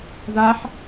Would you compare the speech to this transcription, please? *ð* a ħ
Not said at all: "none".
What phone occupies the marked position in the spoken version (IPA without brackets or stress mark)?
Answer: ð